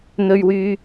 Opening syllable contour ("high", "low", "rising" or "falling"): low